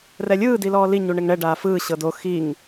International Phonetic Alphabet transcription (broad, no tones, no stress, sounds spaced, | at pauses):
r ɛ lʲ ɯː d i l ɔː l i ɲ u ɳ e ŋ ɳ ɛ ɖ aː f ɯː ɕ ɤ d o x i ŋ